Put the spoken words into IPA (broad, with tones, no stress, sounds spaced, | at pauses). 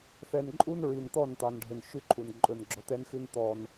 θ ɛ˨ n ǃʼ u˦ n ɹ i˨ n t̪ ɔ˦˨ n t̪ ɑ˨ n ɖʱ ɵ˨ n ʃ ʉ˦ ǃʰ u˨ n ǃʼ ɵ˨ n ɡ͡ǁ ɔ˨ t̪ ɛ˦ n x ʉ˦ n t̪ ɔ˦ n